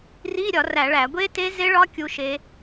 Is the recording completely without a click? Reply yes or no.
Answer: yes